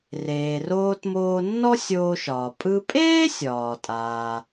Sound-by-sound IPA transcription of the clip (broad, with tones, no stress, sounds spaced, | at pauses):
r eː˩ r oː˧ t m oː˧ nː ɔ˥ sʲ oː˧ ʃ ɒː˩ pʼ ɯ˧ pʼ eː˥ sʲ ɒː˩ tʼ aː˩